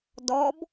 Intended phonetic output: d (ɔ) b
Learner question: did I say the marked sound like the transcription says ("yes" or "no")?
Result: yes